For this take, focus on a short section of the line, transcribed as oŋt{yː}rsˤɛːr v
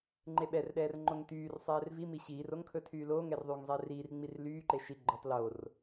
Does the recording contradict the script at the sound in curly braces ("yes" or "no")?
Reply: no